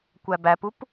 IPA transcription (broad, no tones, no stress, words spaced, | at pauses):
kʷæbæpup